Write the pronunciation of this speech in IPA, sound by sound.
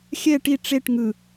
xʲ ɛ ʈ i ʈ͡ʂ e ʈ ŋ ɯ

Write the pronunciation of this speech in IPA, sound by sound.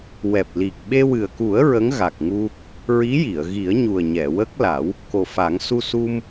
w ɛ˨˩ p̚ l i˨˩ k̚ ɓ e˧ w ɨ˨˩ ə̯ k u˨˩˦ ə̯ ɹ ə˧˥ ŋ ɣ a˨˩ k̚ ŋ u˧ | ɹ i˧˥ j i˨˩˨ ə̯ ɣ i˨˩˦ ə̯ ɲ u˨˩ ə̯ ɲ ɛ˨˩˨ w ə˦˥ k̚ l a˨˩˦ w | k o˨˩ f a˨˩˦ ŋ s u˧ s u˧ m

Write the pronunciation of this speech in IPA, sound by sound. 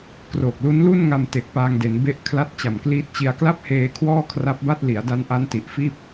k r o˨˩ k̚ l u˦˥ n l u˥˩ n ŋ a˧ m t e˨˩ k̚ p aː˧ ŋ d e˩˦ n b e˥˩ ʔ kʰ l a˦˥ t̚ t͡ɕ a˨˩ m k l iː˦˥ t̚ t͡ɕ i˧ a̯ k l a˥˩ p̚ h eː˧ kʰ w ɔː˥˩ kʰ r a˦˥ p̚ b a˥˩ t̚ l i˩˦ a̯ d a˦˥ n ʔ a˦˥ n t i˨˩ ʔ f iː˥˩ p̚

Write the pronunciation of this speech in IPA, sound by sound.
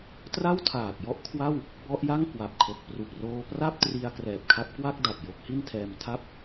t r a˥˩ w tʰ aː˨˩ k̚ j ɔ˥˩ ʔ kʰ w a˥˩ w | b ɔ˦˥ ʔ j a˥˩ ŋ k w a˨˩ p̚ kʰ o˨˩ k̚ p r u˨˩ k̚ r oː˧ p r a˥˩ p̚ t r i˧ a̯ k r ɛː˨˩ p̚ kʰ a˦˥ p̚ k w a˥˩ k̚ d a˨˩ t̚ j o˦˥ k̚ h i˥˩ n tʰ ɛː˧ m tʰ a˥˩ p̚

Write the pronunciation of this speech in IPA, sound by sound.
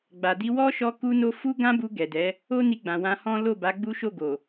ɡ͡b a˨ d i˧ w ɔ˦ ʃ ɔ˧ k u˦ n o˦ f u˦ ɡ ã˦ b u˧ ɡ ɛ˨ d ɛ˨˦ | o˦ n i˧ ɡ͡b ã˨ w ã˧ h ɔ̃˦ l o˦˨ b a˨˦ ɡ͡b u˦ ʃ o˦˨ ɡ o˨

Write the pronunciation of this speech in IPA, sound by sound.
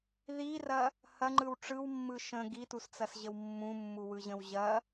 ð i r ɐ | h ɐ ŋ͡ǃ ɯ w ʈ͡ʂ ɯ w mː ɯ ʃ ə̃ ɡ i t u s t͡s ɐ s ʑ ə w mː ũ mː u w ɯ ʑ ə̃ w ʑ ɐ

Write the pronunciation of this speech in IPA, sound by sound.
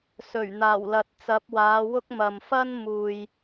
s ɵ˨˩ ɥ n̪ aː˨˩ w l ɐ˨ t̚ t͡s ɐ˨˥ p̚ w aː˨˧ w ʊ˥ k̚ m ɐ˨ m f ɐ˥ n m uː˨ j

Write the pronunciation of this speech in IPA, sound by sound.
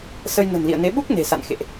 s ə˧ j n ə̤˨˩ n l ḭ˧˨ ə̯ n e˨˦ ɓ u˦˥ k̚ n e̤˨˩ s a̰˧˨ n x ḛ˧˨ ʔ

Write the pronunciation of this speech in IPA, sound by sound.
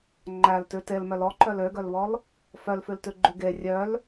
ŋ͡ǃ æ l t ʉ t e l m œ l ɔ ǃ œ l ø ɡ œ l β ɔ l | f œ l f ʉ l t ʉ ɡ͡ǃ ʉ ɡ e rʲ œ l

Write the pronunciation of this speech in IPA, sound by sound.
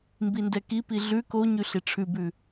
m b i n d ɛ k i p i ɮ ʉ k o ɲ ʉ ɬ i ʈ͡ʂʰ ʉ b ʉ

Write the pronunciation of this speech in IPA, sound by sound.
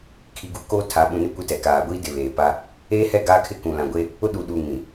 kʰ i˨ ɡ u˨ k oː˦ tʰ a˨˦ ɓ ũ˨ n ɪ˦ kʷ ɪ˦ t ɛ˨ k aː˨ ɡʷ i˦ d ɪ˨ β eː˨ p a˦ | eː˦ h ɛ˦˨ ɡ aː˦ kʰ ɪ˦ k ũ˨ l ã˨ ɡʷ e˦ | ʊ˦ ɗ uː˨ ɗ uː˨ ŋ ĩ˨

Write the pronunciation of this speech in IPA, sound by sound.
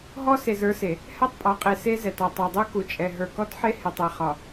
ɦ ɔ˦ s e˨ z ə˞˦ s e˨ | h ɛ˦˨ tˤ pʼ ɒ˨˦ qʼ e˨ s e˦ z ɛ˨ t ɔ˨ tˤ ɛ˨ dˤ u˦ k u˨ t͡ʃʼ ɛ˨ ɦ ə˞˨ k ɔ˦ t ħ e˦ h e˨ tˤ e˨ χ ɒ˨

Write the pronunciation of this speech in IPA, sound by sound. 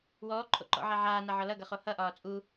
w ɔː ǃʰ o̰ ǃ ɔ̰ ʕ a ʕ aː n a ʕ ɒ l ʌ ɡ ʌ χ o h ʌ ʔ ɒː t͡sʼ u

